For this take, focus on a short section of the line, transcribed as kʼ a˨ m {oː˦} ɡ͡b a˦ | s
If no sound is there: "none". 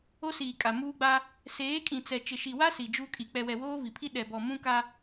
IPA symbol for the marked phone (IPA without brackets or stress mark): uː˦